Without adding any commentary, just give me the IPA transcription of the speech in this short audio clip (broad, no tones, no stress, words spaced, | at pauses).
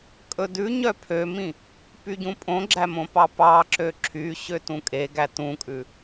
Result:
kʼɵdʉɲœ pʰømĩ | pyɟũpʼõɡ͡ǁæ mõpɑpɑǁø ǁʰy ɕøtũkʼeɡæ tũkʼʉ